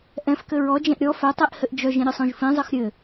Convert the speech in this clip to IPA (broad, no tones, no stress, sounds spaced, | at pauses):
ʔ ɛ̃ f k ɘ ɹ ɔ d͡ʒ ɛ̃ ʔ ɾʲ ɔ f ɛ tˤ i ʔ h ɘ ʔ d͡ʒ œ ʒ ĩ ɾʲ ɘ sˤ õ ʒ f ĩ zˤ ɘ x ɾʲ ɘ